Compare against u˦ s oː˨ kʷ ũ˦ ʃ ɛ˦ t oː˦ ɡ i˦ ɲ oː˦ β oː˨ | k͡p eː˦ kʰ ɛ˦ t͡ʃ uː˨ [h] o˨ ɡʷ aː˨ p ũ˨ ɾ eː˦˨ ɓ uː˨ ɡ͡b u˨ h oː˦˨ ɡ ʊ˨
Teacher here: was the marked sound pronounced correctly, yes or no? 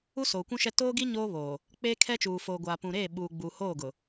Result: no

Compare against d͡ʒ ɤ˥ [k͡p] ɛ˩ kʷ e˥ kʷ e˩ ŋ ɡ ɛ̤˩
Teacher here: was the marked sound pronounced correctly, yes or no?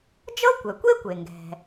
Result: no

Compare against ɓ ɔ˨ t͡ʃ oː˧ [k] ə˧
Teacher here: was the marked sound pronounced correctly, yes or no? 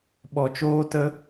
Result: no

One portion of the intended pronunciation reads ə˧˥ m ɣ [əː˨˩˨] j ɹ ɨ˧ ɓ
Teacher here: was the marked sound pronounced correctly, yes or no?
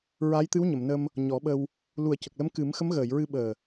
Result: yes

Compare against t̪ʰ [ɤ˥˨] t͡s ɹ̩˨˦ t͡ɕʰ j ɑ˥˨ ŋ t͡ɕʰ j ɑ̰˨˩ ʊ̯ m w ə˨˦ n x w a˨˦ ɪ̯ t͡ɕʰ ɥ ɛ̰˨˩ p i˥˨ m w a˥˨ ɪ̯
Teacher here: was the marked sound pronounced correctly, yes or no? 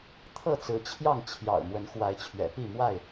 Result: yes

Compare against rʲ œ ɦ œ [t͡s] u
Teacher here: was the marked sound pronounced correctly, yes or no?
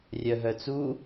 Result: yes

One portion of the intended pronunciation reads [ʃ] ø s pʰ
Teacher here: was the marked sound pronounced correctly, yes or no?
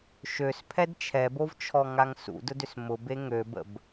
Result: yes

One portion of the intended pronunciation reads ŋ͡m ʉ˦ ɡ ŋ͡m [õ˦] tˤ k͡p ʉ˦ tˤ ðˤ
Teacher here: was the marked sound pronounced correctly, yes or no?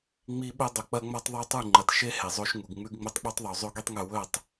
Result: no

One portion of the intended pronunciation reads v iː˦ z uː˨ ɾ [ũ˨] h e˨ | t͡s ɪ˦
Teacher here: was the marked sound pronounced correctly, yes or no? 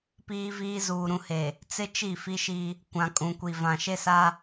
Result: yes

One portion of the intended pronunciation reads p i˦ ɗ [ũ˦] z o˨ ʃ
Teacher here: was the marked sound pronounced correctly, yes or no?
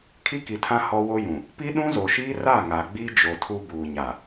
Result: yes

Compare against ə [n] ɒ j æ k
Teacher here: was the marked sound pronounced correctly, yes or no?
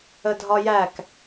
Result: no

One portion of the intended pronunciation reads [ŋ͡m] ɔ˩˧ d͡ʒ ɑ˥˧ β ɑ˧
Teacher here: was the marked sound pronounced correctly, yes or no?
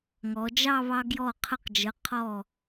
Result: no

